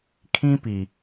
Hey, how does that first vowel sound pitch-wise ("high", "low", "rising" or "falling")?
high